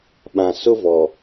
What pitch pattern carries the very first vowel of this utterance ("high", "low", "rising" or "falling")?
low